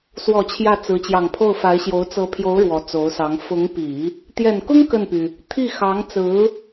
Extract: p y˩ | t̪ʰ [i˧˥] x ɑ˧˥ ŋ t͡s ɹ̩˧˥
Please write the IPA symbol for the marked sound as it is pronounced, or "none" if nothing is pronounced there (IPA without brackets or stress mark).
i˥˩